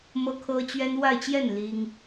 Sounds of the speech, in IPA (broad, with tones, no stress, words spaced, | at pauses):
mɤ˥kʰɤ˥t͡ɕɥɛ˥n wa˥˧ɪ̯t͡ɕjɛ˥˩n li˥ŋ